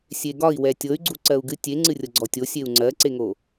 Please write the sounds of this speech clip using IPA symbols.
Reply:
sʲ e ɡ ɒ i̯ w ɛ tʲ ɤ y̯ ɡ͡ǀ u ǀ ɜ u̯ ɡ ɨ tʲ e ŋ͡ǀ ɨ rʲ ɤ ɡ͡ǀ ɔ tʲ o sʲ e u̯ ŋ͡ǀ ɜ ǀ e ŋ o

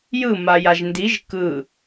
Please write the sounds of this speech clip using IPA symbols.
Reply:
j ɯ m a j a ʒ n d i ʒ k ɯ

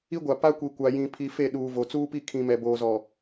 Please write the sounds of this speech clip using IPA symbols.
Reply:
i˦ ɡʷ a˨ p a˦ kʷ i˨ kʷ a˨ j ĩ˨ pʰ i˨ f e˦˨ ɗ uː˨ v o˨ t͡s uː˦ p i˦ kʰ ĩ˨ m ɛ˨ b oː˨ z ɔ˨

